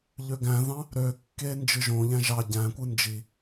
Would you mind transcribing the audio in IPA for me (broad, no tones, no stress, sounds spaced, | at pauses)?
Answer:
ʎ ø ɡ æ̃ ð ɑ̃ | ɾ ø kː e n d͡ʒ ɯ ʒ õ ʎ æ̃ ʒ ɑ ɟ æ̃ kʷ ɯ n d͡ʒ i